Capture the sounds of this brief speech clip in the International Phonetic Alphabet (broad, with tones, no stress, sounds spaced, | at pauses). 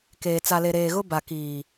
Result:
k eː˨ t͡s a˨ l e˨ ɾ eː˨ ɣ ʊ˦ b a˨ k iː˨